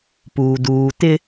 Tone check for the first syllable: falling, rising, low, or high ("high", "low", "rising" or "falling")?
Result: low